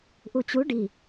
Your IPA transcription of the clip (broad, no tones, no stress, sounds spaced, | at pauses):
ʔ u t͡ɕ u ɖ i